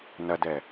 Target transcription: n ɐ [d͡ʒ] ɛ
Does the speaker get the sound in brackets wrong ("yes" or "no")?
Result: yes